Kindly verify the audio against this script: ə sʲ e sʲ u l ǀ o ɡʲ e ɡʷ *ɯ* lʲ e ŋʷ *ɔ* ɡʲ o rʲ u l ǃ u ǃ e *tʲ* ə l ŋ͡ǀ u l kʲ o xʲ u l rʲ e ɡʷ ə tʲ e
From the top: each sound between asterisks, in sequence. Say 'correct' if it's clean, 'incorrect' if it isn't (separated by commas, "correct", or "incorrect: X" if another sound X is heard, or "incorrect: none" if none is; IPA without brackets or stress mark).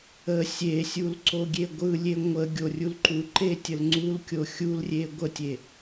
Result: correct, incorrect: ə, correct